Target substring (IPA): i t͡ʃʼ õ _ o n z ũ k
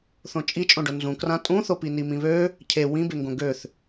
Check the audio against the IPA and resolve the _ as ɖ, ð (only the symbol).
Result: ɖ